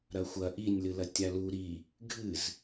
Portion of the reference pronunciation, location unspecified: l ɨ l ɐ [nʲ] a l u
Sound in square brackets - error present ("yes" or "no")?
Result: yes